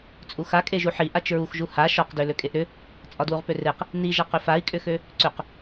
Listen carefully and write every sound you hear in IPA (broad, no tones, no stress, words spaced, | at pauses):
t͡sʼuxa kʼeʒuħi ʔat͡ʃɹuxʒu ha ʃɒqdø løkʼeʔɾʏ | t͡sʼɒdwuʁpøreq | niʒaqʏ fai̯kʼʏxø | ǀʏq